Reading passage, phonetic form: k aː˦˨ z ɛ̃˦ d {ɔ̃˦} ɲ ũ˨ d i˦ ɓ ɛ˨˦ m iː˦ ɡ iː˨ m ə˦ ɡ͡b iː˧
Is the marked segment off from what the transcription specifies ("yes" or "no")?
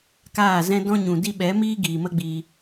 no